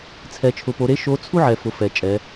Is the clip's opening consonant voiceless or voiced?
voiceless